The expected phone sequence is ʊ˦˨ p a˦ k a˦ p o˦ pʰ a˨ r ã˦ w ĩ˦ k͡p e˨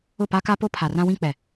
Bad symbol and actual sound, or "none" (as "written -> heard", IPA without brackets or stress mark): e˨ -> ɛ˨